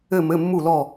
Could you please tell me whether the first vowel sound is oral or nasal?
oral